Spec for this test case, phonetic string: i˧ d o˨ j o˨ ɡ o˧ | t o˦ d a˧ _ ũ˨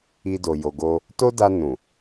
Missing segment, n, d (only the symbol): n